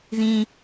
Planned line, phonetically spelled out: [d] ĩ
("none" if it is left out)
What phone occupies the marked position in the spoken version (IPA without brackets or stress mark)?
ð